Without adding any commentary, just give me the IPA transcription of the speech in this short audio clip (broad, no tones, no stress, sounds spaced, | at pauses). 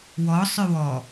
w ɔ sˤ ʏ w ɔ